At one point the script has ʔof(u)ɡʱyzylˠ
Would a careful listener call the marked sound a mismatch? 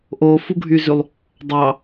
no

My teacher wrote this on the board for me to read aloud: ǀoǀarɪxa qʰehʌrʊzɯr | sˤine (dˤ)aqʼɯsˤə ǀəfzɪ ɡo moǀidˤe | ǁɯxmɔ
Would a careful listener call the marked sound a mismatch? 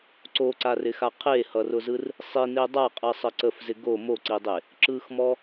no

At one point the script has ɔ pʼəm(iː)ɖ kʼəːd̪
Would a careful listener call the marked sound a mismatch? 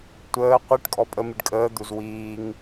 yes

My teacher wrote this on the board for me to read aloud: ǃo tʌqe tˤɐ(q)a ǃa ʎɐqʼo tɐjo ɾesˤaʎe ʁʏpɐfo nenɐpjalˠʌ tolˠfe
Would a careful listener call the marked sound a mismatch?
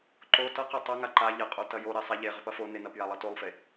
yes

